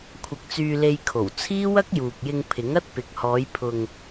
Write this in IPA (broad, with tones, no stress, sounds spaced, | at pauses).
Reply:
kʷʰ ɐ˧ k̚ t͡s yː˧ l e˧ j kʰ o˨˩ w t͡sʰ iː˥ w ɐ˥ k̚ j uː˨ k̚ j ɪ˧ ŋ pʰ ɪ˨˥ ŋ ɐ˥ t̚ p ɪ˨˥ k̚ h ɔː˨˧ j pʰ ʊ˨ ŋ